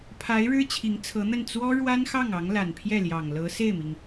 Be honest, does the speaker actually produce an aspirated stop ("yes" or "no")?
yes